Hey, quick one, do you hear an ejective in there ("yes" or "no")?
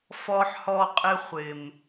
yes